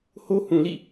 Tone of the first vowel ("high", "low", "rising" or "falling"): high